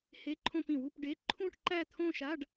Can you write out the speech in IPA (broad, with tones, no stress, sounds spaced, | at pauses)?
h e˧˥˧ ǃʰ õ˥˧ p ĩ˨˩˦ w u˧˥˧ p ɖ e˧˥˧ ǃʰ ũ˥˧ ʈ ǃ æ˥˧ t̪ʰ õ˥˧ ʃ a˧˥˧ ɖ